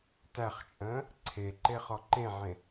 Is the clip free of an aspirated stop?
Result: no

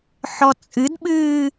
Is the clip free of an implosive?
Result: no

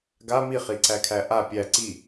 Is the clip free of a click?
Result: no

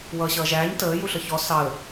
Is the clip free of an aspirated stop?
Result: yes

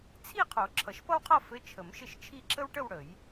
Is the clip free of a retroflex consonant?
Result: no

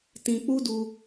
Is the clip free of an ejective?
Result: yes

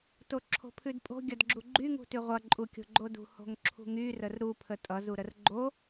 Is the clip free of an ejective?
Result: no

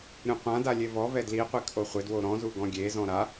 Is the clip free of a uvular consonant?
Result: no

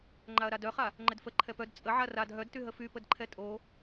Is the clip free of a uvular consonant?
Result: no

